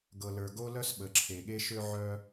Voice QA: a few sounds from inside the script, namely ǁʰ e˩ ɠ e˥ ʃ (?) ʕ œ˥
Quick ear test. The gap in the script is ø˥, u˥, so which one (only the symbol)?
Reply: ø˥